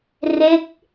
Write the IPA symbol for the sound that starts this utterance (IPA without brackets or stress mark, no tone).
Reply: r